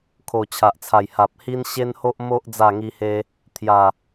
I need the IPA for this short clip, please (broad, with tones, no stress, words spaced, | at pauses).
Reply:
kʰo˨˩t͡ɕʰa˨ʔt͡sʰa˨˩j ha˨p̚ hi˦n ɕe˦nho˦ʔ mo˦ʔ d͡za˥˧ŋi˦he˦ | t̪ʰja˨˩